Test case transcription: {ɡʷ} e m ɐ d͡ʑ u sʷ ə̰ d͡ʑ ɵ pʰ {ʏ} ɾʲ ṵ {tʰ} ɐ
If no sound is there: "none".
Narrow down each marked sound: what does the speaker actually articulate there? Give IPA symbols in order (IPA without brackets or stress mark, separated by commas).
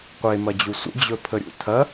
qʷ, ə, tʰ